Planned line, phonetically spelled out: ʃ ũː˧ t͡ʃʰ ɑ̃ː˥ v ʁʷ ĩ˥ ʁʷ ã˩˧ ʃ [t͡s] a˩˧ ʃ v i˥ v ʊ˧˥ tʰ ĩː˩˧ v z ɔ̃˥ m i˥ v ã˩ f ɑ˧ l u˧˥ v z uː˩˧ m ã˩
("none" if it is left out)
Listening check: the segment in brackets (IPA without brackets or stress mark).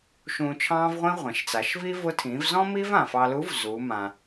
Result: t͡s